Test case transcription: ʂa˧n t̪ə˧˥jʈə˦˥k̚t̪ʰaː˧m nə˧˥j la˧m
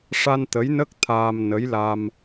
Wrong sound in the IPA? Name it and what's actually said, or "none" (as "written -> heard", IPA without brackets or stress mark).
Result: ʈ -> n